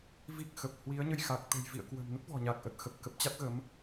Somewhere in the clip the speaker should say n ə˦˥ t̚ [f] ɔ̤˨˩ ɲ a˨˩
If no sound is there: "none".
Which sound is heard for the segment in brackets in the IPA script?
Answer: v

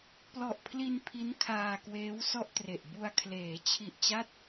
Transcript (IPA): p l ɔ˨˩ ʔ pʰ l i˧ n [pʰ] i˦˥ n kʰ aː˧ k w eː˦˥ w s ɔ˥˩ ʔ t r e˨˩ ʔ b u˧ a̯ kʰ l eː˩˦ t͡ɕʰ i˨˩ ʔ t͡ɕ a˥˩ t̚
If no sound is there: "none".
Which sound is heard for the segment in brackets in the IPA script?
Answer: pʰ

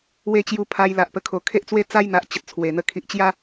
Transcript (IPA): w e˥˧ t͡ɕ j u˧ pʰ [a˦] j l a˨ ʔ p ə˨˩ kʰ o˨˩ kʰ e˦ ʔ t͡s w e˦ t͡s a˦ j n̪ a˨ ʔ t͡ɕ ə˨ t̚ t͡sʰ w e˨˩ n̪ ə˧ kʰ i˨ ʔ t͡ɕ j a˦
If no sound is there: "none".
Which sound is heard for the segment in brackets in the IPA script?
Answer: a˧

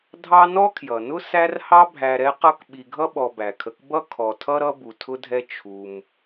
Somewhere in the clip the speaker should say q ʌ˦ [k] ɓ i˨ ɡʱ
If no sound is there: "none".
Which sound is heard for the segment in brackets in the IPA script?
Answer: k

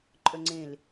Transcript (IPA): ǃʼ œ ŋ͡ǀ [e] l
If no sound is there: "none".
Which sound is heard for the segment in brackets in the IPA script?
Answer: ẽ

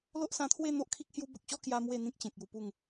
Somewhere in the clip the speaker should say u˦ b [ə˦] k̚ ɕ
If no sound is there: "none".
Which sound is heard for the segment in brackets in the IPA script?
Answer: ə˨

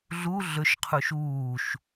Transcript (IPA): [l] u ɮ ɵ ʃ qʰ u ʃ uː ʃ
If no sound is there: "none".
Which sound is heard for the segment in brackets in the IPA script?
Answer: ɮ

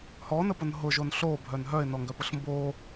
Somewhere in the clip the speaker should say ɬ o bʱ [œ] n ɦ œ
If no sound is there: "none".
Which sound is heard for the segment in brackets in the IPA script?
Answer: œ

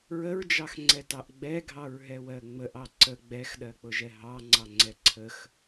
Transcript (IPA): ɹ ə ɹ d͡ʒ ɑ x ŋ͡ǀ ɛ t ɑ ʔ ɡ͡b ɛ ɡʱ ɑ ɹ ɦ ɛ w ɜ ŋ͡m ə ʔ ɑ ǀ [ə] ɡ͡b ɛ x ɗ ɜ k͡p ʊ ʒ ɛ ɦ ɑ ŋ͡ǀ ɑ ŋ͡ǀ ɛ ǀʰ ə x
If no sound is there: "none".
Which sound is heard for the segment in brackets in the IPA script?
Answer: ə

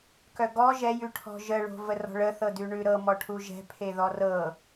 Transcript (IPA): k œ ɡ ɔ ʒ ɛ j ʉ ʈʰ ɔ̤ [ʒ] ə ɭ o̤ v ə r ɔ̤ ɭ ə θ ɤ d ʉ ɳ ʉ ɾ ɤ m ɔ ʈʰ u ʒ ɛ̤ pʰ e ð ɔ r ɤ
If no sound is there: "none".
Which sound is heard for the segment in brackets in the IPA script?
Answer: ʒ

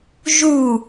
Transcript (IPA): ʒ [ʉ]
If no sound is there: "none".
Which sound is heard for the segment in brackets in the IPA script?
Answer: u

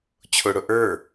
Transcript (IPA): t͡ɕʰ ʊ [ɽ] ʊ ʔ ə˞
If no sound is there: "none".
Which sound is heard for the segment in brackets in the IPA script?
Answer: ɽ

